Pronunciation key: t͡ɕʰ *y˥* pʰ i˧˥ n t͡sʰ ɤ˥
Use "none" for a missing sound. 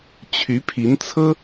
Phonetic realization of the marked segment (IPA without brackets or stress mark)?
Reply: y˧˥